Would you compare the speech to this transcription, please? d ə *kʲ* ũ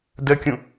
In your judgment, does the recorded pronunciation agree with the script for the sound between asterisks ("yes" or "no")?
yes